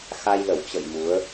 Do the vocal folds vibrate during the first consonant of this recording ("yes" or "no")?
no